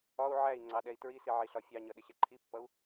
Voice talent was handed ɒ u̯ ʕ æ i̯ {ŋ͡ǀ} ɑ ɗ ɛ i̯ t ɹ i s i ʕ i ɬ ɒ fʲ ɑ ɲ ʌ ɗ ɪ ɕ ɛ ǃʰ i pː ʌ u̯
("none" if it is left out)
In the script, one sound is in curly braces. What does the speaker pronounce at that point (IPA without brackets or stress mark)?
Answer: ŋ͡ǀ